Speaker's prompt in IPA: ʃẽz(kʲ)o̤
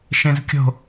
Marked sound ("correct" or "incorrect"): correct